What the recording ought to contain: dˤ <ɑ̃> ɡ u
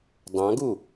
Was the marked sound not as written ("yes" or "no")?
no